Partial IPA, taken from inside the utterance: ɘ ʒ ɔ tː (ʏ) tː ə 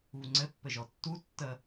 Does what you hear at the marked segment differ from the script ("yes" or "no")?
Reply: yes